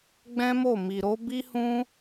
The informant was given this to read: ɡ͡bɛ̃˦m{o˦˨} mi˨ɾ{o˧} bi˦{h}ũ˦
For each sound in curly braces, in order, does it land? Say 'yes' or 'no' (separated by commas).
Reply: yes, no, yes